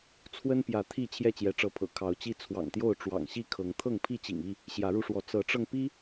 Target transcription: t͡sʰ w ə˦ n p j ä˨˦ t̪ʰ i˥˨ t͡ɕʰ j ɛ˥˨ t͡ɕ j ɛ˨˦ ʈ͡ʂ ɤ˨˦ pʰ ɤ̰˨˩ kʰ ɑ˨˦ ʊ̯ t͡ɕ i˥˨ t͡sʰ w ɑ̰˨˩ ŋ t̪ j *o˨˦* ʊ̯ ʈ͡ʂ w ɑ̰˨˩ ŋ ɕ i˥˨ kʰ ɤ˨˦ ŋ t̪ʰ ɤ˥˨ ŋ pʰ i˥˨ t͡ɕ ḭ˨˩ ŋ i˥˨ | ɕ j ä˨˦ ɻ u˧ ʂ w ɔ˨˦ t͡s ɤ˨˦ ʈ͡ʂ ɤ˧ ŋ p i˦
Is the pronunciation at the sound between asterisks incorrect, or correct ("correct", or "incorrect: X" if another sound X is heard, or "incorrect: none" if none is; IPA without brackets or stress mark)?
incorrect: o˥˨